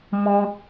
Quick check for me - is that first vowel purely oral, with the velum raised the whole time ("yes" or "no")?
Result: no